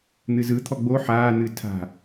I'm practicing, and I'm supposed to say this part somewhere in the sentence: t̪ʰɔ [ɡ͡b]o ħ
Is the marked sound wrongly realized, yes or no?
no